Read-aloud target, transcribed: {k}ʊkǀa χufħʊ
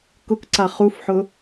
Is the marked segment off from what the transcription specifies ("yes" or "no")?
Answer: no